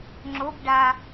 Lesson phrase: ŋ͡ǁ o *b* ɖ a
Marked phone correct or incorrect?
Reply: correct